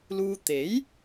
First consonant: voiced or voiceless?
voiced